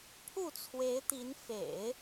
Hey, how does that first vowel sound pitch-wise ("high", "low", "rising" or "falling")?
falling